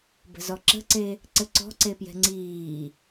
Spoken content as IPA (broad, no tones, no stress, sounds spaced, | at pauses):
b ə̤ z ɔ ǁ ə̤ ǀ e | ǀ ɘ ǀ ɔ̤ ǀ e p j ɛ̤ ŋ͡ǀ iː